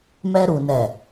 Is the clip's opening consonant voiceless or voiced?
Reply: voiced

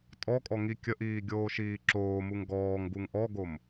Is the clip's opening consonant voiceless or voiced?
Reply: voiceless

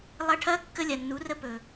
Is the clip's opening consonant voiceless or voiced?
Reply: voiced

